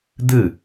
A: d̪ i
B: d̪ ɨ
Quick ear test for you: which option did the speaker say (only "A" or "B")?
B